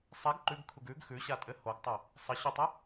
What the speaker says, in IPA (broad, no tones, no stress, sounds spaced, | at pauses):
sˤ ɛ ɡ ǃ ʉ ɡ kʰ u ɡ ʉ ɡ x ʉ ɕ a tʼ ɘ h o ɡ tˤ o | sˤ ə ɕ o tˤ ə